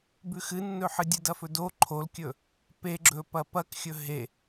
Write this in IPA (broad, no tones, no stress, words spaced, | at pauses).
bʉxɨnːɵħɨ dʲɨdɐfɵdo ǃʰolkʲɵ | peɡ͡ǁɵ pɐpɐkxʲɵ ɦe